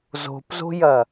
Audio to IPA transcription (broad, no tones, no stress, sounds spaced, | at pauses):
z o̤ p z o̤ j ɐ